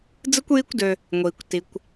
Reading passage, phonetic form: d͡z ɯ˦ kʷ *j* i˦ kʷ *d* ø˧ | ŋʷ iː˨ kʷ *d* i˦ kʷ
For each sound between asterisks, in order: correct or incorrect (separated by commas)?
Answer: correct, correct, incorrect